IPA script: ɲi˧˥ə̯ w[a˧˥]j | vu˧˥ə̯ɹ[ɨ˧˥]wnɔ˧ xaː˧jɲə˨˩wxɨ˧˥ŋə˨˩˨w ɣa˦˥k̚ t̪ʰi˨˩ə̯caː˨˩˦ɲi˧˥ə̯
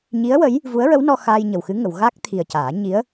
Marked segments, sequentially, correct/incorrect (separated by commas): incorrect, incorrect